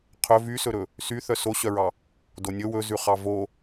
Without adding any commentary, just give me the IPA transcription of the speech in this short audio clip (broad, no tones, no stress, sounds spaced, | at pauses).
qʰ ɵ v y s ɵ ɾ ɵ | s y θ œ s o ɕ œ ɹ ɑ | d o nʲ ɵ w ɵ z ʉ χ ɑ v o